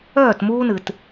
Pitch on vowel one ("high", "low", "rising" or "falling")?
falling